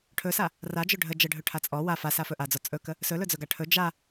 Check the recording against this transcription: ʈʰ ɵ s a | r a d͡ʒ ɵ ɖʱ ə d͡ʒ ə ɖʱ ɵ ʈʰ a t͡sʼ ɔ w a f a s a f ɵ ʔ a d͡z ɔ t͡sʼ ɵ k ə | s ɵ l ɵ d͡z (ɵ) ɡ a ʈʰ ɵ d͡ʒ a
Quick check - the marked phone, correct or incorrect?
correct